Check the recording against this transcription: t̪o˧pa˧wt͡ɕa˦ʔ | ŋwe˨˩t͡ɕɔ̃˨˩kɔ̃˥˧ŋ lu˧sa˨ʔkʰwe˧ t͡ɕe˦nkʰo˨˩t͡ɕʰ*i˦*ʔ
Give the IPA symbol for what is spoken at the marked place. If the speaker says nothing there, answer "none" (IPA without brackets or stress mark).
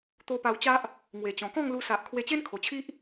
i˦